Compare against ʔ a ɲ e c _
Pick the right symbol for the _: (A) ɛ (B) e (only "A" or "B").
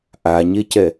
A